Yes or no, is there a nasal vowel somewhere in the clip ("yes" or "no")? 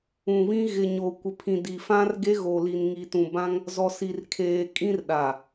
yes